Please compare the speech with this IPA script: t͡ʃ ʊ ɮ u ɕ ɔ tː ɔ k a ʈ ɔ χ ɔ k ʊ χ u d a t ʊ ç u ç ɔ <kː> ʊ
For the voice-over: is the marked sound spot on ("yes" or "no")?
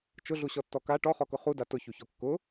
yes